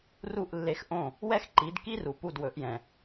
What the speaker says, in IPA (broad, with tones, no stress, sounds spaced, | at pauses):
r u˥˩ ʔ lː e˧ x ʔ õ˥˩ | w ɛ˥ x ǃ i˩˥ d k i˥ r u˩ p u˥˩ d w ɵ˩˥ ʔ j ɛ̃˩